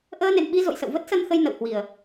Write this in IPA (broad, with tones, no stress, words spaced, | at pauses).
ʔəː˧nḛ˧˨nɓi˧ zo̰˧˨jsə̰˧˨wvə˦˥t̚ sə˧nxə˧j nə̰˧˨whwi˨˩ə̯